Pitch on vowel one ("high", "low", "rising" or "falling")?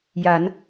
rising